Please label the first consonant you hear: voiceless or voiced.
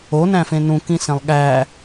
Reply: voiced